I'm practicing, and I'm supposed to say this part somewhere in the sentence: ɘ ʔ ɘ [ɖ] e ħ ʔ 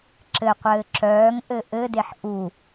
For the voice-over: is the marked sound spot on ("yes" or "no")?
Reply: no